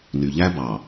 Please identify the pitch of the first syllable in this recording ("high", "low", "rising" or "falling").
low